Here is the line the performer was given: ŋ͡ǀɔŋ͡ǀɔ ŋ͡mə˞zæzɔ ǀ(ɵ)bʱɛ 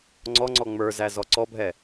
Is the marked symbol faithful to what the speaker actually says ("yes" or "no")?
no